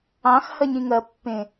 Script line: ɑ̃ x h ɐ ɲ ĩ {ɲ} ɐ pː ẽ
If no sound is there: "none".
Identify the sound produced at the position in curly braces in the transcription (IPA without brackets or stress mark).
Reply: ŋ